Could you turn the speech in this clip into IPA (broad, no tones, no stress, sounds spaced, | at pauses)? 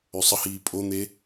ø sˤ ə h iː pʼ o n̪ e